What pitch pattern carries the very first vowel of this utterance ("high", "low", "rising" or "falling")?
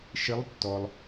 rising